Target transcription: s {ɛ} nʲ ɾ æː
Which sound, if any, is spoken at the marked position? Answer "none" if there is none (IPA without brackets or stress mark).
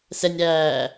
ɛ